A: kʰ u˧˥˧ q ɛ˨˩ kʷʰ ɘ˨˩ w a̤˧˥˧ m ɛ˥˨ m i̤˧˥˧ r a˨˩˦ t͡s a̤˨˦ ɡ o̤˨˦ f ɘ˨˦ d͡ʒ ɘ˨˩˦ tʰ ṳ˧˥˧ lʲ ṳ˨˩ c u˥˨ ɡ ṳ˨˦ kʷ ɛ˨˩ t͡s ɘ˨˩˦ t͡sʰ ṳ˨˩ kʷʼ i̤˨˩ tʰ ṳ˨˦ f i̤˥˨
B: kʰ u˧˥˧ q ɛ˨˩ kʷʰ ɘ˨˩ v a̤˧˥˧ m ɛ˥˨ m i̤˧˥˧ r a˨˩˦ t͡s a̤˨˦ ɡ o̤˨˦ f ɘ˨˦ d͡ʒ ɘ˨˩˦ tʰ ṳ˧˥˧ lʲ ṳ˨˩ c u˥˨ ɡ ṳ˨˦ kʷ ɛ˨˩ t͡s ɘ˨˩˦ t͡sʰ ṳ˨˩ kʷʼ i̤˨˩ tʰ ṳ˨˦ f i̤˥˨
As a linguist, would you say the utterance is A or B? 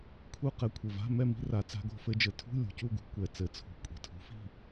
B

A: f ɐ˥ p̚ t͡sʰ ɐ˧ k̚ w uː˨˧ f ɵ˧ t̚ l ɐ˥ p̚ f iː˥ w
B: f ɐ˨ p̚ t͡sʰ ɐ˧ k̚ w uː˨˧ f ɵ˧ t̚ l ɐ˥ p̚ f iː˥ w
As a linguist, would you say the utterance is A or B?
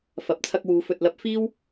B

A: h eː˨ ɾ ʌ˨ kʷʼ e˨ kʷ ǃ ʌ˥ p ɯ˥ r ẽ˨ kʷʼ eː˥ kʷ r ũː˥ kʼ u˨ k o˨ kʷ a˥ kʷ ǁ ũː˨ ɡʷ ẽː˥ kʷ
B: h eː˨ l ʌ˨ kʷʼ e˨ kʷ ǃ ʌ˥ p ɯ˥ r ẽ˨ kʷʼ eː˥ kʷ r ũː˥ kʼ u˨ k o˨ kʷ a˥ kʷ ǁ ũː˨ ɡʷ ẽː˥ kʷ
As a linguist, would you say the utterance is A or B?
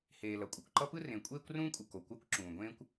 B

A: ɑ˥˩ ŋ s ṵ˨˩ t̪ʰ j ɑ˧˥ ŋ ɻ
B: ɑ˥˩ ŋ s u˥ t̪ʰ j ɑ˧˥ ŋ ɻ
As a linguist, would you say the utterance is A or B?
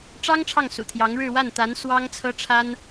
A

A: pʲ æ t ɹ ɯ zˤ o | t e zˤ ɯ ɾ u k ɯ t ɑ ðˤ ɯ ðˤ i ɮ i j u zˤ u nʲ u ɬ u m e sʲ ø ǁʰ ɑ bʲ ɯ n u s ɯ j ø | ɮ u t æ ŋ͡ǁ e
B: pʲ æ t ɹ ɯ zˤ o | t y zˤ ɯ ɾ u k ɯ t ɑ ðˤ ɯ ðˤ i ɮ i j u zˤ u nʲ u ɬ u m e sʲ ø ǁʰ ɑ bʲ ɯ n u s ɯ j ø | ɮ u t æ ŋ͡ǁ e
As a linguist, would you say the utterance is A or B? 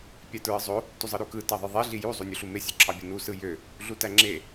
B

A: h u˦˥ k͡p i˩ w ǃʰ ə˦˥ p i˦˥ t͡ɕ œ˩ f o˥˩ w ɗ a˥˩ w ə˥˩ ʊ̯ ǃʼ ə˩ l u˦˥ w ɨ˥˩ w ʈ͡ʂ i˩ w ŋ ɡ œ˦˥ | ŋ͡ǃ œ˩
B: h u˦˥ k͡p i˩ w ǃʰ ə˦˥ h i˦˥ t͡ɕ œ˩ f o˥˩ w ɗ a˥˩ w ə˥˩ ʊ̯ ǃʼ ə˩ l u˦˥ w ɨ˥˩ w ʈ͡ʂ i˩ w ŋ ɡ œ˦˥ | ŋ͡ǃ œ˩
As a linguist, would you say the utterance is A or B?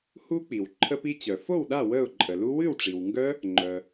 A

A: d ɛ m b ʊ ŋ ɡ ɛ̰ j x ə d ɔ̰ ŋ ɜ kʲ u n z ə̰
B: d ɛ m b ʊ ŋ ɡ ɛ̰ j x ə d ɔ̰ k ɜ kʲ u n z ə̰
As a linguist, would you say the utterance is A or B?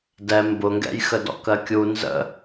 B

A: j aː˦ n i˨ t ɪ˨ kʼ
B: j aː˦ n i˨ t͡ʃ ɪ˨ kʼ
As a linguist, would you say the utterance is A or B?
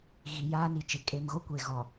B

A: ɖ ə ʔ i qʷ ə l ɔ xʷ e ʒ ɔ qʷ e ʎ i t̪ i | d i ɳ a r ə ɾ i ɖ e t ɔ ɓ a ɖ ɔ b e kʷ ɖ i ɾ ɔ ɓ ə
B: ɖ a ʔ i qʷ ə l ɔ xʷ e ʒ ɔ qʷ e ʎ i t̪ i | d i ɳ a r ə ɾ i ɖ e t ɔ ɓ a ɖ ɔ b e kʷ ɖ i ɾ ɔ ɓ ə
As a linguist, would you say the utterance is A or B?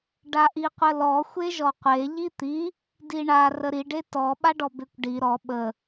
B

